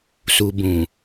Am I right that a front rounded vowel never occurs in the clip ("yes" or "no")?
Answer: yes